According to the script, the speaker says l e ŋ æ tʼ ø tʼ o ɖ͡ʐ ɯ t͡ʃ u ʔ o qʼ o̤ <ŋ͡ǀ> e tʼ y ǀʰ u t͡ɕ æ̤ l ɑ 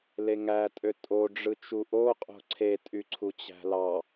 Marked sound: incorrect: ǀʰ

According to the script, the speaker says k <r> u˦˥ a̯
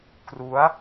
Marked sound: correct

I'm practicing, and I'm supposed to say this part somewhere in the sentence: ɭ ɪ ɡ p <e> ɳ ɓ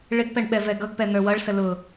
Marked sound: incorrect: ɛ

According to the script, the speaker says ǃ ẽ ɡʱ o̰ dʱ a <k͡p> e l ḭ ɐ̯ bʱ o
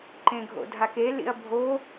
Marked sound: incorrect: k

